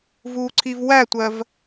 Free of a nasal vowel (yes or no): yes